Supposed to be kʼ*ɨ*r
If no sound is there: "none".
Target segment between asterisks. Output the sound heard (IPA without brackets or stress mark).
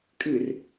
ɨ